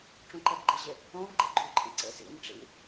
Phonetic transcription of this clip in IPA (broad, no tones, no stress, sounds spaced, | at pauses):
ʈ͡ʂ ũ ǃ ɛ p ɡ͡ǃ ɘ ʑ ɪ | õ v ɡ͡ǃ ḛ ɡ͡ǃ u ǃʼ ḭ ǀ ḛ s ḭ n ʈ͡ʂ ḭ